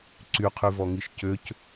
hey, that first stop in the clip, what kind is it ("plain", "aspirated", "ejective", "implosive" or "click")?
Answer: click